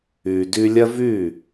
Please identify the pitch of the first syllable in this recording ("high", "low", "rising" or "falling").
low